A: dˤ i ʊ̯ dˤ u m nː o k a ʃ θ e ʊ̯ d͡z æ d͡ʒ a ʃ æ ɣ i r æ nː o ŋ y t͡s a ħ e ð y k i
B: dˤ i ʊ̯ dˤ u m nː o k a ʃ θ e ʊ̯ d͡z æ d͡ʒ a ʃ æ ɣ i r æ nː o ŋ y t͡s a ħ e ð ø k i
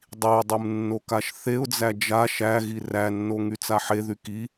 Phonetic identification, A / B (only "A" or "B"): A